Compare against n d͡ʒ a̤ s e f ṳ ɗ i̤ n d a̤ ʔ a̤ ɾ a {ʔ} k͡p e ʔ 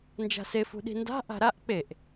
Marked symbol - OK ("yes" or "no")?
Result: yes